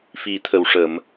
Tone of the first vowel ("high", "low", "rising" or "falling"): low